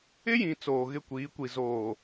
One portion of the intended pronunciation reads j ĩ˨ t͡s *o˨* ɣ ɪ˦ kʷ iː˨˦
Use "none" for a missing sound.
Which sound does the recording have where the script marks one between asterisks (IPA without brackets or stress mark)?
oː˨